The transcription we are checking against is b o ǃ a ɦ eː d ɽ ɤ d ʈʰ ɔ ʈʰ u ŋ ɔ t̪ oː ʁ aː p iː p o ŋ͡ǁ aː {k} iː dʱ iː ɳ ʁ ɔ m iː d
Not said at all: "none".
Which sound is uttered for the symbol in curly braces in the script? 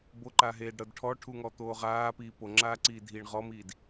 ǀ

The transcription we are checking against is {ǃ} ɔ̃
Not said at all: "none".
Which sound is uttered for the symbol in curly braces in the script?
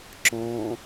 ǁ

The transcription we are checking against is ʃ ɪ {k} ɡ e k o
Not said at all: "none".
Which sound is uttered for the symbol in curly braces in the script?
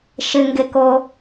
ŋ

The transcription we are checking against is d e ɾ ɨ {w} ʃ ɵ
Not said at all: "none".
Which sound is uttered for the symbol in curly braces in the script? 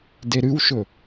w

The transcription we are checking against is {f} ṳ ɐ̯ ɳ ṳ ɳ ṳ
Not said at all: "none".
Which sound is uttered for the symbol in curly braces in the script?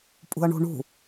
pʼ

